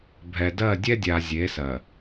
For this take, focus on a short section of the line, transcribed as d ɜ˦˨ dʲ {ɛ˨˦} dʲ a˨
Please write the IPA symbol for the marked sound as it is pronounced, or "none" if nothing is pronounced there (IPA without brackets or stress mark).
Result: ɛ˦